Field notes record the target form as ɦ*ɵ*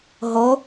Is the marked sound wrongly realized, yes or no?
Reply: yes